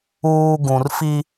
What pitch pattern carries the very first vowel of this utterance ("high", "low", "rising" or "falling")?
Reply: low